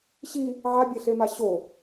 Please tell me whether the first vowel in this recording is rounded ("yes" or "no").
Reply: no